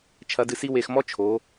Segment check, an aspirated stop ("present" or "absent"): present